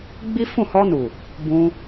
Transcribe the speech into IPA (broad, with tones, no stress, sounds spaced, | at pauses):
ɡ͡b i˦ f ũ˦˨ h ɔ˧ n u˨ | b ũ˧